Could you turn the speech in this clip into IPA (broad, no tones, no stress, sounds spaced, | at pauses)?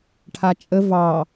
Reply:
ʈʰ a t͡ʃʼ ə v ɑ